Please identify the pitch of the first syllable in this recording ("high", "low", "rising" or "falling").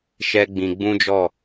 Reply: high